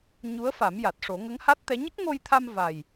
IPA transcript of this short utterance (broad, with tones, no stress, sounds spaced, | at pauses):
ɲ u˧˥ ə̯ f a˨˩˦ m j a˨˩ t̚ ʂ o˨˩˦ ŋ ə˧˥ ŋ h a˦˥ t̚ t̪ ɛ˧˥ ɲ ə˦˥ k̚ ŋ o˧ j t̪ʰ a˧ m v a˨˩ j